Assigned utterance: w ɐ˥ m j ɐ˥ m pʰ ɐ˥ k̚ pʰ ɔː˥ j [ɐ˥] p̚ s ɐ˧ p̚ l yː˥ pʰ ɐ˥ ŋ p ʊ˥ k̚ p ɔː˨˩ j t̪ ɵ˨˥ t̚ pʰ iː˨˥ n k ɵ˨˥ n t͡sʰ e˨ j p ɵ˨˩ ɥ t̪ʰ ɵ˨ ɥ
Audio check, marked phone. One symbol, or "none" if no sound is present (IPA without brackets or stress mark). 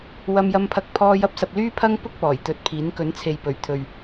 ɐ˥